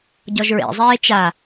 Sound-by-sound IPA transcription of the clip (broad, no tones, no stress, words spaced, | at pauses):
ɟɔʒɹḛzˤeː t͡ʃa